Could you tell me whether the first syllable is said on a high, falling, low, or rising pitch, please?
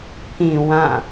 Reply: low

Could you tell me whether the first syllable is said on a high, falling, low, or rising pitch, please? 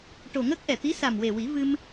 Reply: low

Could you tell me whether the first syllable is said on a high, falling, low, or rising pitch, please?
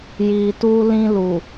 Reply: low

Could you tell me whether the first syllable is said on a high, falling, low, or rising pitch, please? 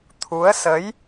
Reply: rising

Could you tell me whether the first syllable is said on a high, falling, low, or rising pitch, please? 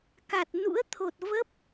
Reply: low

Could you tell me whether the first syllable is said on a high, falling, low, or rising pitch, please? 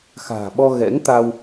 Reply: low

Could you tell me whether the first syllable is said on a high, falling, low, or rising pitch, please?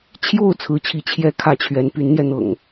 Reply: falling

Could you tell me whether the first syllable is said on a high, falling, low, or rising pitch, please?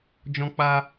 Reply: high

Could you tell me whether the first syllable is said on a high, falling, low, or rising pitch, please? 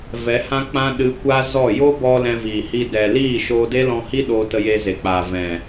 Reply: rising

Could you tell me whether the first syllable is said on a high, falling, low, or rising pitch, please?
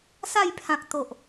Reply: falling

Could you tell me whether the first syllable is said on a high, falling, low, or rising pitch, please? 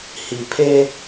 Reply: low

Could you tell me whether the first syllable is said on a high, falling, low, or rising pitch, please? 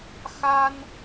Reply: high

